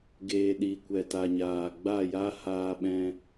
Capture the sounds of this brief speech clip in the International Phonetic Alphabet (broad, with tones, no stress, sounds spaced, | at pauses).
ɡ eː˨ ɗ i˨ kʷ ɛ˨ t a˨ ɲ aː˨ ɡ͡b a˦˨ j a˦ h aː˧ ɓ ɛ̃˧